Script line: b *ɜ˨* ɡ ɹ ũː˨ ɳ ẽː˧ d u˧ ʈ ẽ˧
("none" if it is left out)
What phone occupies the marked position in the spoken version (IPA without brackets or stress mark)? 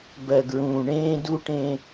ɜ˨